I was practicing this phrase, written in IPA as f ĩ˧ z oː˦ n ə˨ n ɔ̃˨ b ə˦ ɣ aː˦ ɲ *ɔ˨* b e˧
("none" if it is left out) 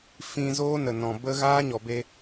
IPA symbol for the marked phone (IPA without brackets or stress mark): ɔ˨